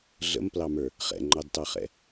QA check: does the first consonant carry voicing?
yes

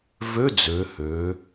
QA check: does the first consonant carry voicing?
yes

